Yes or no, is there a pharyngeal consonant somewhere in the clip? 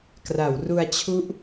no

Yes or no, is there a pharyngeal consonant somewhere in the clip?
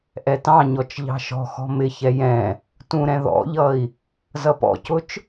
no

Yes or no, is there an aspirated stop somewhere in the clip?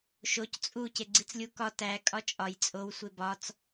no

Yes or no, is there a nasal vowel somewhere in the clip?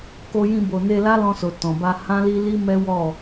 yes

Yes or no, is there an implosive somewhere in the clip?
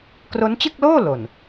no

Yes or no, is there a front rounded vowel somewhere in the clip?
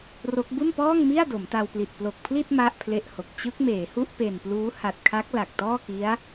no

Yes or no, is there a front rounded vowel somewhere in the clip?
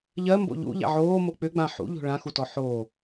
yes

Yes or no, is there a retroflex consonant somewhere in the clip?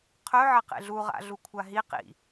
no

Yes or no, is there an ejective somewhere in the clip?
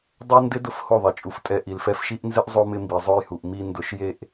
yes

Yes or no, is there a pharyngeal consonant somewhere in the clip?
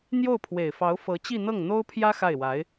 no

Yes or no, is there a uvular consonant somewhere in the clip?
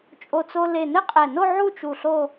yes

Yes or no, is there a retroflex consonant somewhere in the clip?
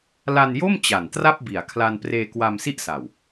no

